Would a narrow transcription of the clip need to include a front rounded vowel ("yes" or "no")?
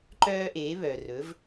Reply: yes